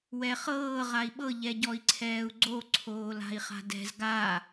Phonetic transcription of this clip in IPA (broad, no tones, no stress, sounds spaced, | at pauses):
w ɛ χ ɤː ʁ a i̯ ɓ ɤ ʎ ɛ ɟ ɔ i̯ ǀʰ ɛː u̯ ɡ͡ǀ o ǀʰ oː l a̤ i̯ χ a̤ d ɛ̤ z ɡ a